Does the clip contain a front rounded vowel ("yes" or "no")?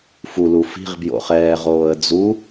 no